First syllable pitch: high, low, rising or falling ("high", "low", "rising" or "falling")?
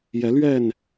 rising